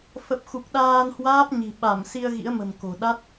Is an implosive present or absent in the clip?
present